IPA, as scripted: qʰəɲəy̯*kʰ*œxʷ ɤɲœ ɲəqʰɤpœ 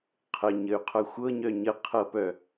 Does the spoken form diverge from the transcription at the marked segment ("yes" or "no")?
yes